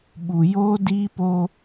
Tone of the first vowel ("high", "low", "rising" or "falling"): low